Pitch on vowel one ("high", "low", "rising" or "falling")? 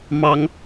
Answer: high